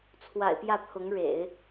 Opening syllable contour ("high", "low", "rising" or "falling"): low